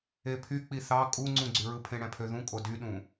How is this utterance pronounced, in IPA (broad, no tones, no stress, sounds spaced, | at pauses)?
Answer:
e pʰ y k͡p i θ ɑ kʼ u ŋ͡ǀ ũ ɡ͡ǀ y ɹ ɯ pʰ ẽ ɽ æ̃ pʰ ø ð ũ kʼ o d y ɗ ũ